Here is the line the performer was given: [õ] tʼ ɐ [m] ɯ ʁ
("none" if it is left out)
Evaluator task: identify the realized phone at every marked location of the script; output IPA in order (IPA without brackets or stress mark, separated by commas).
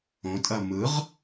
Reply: õ, m